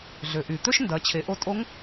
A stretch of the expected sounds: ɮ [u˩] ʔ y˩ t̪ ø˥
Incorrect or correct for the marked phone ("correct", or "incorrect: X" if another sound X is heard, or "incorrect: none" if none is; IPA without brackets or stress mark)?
incorrect: ø˩